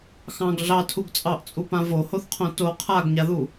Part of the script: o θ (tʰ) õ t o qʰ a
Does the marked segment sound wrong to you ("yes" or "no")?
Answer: yes